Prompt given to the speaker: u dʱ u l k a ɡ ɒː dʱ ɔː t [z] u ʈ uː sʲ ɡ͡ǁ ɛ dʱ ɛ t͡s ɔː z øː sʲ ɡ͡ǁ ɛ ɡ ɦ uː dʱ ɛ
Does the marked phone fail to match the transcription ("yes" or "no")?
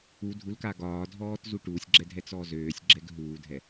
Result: no